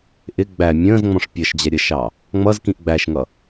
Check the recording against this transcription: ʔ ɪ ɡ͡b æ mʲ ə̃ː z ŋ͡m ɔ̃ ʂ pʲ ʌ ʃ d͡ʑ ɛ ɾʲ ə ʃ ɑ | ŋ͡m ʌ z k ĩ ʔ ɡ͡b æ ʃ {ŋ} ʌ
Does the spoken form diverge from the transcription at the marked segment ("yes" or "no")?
no